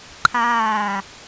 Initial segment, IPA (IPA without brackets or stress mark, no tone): ǃʰ